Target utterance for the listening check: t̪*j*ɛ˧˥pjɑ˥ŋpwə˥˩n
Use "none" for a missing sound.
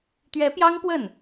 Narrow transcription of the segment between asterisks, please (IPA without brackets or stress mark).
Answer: ɥ